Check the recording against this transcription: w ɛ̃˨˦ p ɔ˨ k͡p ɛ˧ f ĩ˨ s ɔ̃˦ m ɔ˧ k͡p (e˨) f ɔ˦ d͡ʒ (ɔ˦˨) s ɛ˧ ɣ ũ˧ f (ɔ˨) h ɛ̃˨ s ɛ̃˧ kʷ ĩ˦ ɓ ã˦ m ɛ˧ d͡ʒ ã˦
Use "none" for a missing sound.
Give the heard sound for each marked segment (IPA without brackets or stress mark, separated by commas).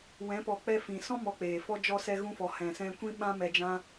eː˨, ɔ˧, ɔ˨